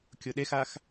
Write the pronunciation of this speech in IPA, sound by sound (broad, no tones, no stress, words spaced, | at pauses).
kʲʊɗexax